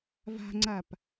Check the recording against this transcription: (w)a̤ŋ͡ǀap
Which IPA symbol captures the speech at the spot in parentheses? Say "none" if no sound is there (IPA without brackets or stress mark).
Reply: v